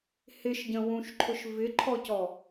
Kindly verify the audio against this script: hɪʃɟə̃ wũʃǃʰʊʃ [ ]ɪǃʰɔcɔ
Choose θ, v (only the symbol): v